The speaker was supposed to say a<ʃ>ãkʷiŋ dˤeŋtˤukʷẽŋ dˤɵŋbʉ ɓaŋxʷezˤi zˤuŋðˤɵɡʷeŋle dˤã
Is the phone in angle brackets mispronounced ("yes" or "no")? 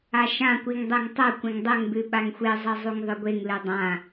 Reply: no